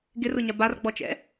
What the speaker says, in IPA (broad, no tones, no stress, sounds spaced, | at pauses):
ɡ ɪ r ʊ ɲ a b a r ɡ͡b ɔ t͡ʃ ɛ̰